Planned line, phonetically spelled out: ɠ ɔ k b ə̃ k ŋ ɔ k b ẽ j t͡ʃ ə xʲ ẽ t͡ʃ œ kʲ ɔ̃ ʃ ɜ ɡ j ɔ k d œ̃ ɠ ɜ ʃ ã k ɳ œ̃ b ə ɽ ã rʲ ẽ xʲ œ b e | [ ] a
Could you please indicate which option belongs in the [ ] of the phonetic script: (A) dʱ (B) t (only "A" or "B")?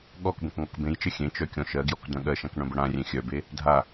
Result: A